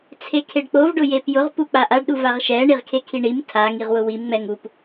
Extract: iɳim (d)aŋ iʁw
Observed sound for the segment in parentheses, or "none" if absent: tʰ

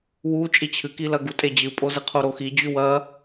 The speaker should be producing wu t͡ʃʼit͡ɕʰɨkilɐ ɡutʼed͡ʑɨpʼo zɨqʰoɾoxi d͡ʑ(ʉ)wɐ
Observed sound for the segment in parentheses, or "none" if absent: ʉ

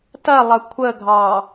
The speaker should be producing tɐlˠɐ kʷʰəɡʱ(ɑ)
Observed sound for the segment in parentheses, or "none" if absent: ɑ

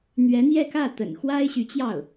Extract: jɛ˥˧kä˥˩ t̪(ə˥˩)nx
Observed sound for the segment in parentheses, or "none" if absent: ə̰˨˩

